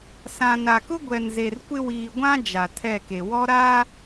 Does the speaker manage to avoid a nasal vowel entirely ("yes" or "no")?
no